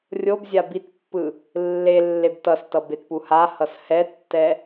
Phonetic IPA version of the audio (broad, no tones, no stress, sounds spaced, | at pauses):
rʲ o b zʲ a b i t pː ɯ | lː e lː e b t ʌ s t ʌ b e t p u h a h ʌ s h ɛ tː ɛ